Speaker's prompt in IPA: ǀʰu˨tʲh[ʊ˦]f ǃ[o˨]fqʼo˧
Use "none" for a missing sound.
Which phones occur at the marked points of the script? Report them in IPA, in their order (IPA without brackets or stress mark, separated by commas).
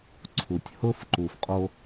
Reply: ʊ˦, u˨